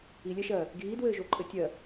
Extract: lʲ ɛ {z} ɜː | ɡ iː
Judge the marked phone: incorrect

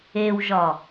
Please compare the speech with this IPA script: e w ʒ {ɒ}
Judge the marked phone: correct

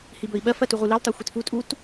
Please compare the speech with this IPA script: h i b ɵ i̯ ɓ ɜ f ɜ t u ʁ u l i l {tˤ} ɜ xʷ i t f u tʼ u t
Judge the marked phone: correct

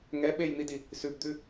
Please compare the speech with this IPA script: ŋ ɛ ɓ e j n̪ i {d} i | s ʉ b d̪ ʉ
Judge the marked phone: correct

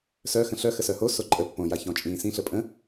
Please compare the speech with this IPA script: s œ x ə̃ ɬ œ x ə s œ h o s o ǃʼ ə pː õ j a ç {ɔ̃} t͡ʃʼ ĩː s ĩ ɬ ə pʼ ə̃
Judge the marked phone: correct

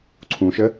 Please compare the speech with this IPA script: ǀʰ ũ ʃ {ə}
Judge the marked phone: correct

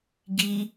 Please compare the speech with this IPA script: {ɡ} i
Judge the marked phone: correct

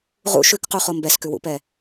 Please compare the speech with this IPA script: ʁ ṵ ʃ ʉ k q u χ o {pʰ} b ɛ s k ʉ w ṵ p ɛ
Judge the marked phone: incorrect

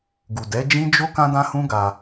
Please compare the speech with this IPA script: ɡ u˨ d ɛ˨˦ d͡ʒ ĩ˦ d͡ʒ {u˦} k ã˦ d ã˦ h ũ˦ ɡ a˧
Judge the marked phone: incorrect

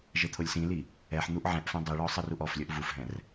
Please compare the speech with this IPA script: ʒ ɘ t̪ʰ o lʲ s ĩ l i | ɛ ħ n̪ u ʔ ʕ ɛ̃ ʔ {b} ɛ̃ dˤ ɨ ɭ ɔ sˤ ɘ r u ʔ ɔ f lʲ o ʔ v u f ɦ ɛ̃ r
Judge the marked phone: incorrect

